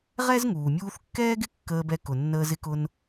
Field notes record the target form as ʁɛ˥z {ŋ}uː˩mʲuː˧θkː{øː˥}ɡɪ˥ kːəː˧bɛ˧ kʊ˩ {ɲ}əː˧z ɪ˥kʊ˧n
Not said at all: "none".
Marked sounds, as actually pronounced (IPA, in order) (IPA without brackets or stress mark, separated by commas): ŋ, ɛː˥, nː